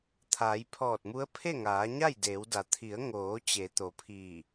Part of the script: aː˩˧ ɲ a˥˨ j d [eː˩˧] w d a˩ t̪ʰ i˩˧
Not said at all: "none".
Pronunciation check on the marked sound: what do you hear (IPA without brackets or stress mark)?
eː˩˧